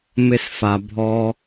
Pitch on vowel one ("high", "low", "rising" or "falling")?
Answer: high